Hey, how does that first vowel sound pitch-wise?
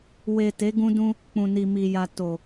low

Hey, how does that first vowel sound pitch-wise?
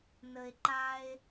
low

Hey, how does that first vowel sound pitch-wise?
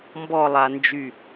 falling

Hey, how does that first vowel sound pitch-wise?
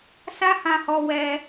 high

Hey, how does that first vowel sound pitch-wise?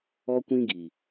high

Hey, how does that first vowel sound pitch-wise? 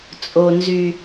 low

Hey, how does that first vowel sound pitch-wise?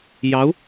rising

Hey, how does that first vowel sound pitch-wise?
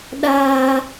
high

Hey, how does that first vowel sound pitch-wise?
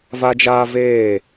high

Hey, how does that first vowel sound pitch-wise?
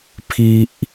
high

